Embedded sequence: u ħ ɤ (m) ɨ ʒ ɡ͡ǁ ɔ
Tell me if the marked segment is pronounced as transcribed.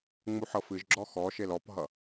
no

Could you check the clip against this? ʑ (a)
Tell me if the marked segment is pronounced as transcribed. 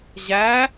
no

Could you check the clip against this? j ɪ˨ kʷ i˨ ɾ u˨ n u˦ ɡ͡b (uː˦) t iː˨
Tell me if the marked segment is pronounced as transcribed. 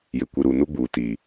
no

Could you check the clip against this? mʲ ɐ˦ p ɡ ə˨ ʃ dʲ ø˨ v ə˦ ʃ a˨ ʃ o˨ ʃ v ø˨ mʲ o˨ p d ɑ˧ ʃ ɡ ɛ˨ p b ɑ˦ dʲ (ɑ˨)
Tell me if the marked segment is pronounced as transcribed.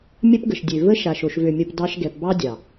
yes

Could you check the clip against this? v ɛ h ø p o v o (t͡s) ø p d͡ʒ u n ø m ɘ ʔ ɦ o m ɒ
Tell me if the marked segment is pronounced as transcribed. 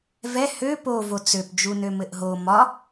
yes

